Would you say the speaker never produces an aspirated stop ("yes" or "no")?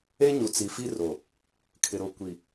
no